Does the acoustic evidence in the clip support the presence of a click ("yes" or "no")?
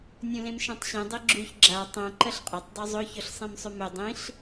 yes